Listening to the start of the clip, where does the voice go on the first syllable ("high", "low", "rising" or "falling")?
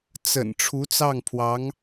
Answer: low